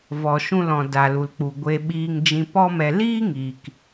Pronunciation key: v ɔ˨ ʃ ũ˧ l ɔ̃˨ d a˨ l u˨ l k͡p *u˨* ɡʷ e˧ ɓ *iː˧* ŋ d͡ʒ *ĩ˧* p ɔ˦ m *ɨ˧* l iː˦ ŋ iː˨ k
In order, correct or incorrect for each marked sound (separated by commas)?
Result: correct, correct, correct, incorrect